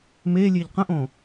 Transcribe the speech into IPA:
melʲeʎ qə̃ʔõ

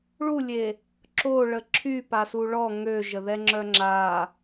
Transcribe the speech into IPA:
ɭulʲe | ǁoɭə ǁʰypasu ɭɔ ŋøʒəðɛŋ͡ǁœ ŋ͡ǁa

